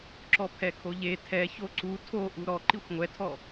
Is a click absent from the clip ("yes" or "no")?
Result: no